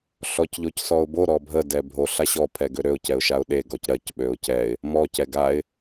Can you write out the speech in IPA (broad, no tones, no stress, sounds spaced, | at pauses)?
ɬ ɔ c ʎ o c s ɔ ʊ̯ b o ɾ ɔ bʱ ə d ɛ bʱ o ɬ a ɕ ɔ pʰ ɛ ɡ ø ɾ ø ʊ̯ c ɛ ʊ̯ ʃ a ʊ̯ ɗ e ɡ ɔ c ɾ ɜ c ɓ ø ʊ̯ c ɛ ɪ̯ | m ɔ c ɛ ɡ a ɪ̯